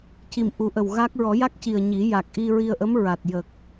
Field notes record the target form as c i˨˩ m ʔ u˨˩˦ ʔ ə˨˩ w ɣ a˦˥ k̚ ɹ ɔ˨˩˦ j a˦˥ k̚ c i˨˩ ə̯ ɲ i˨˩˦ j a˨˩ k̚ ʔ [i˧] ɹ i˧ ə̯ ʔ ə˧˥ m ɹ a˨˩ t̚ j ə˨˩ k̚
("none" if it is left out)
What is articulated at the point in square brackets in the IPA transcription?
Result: i˧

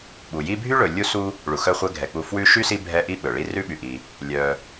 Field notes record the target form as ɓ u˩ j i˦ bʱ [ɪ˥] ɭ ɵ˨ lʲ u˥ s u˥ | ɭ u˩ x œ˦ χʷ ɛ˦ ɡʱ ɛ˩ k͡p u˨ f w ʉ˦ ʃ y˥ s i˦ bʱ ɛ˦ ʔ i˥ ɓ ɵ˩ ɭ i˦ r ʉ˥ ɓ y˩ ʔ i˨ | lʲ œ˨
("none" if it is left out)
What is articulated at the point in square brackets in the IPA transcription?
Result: y˥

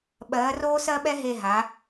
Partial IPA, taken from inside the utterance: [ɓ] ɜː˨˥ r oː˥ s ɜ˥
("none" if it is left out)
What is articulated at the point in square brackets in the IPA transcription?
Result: ɓ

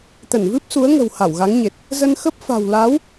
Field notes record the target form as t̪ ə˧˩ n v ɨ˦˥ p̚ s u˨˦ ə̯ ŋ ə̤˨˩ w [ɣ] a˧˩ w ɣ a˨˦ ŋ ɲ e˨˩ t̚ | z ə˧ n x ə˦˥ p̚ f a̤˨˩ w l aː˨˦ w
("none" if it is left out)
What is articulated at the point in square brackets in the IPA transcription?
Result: h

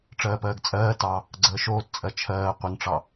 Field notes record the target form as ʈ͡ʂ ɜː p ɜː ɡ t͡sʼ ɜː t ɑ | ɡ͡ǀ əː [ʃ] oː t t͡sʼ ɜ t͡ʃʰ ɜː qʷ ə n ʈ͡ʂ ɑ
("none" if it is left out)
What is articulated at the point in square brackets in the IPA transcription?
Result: ʃ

